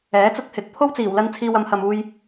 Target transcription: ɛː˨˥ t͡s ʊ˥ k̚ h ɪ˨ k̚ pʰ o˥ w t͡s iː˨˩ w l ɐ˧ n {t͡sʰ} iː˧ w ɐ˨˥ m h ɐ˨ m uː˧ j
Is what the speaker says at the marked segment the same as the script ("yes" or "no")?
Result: yes